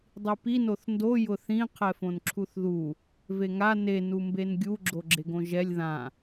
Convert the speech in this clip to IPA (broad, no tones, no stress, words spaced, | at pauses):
dˤipi noθndo jʊθĩ qʰɛfõnǁʰuθðu | veŋa ne numbenɡʲu ɡ͡ǁoɡ͡ǁeɡõʒɛlʲ ðã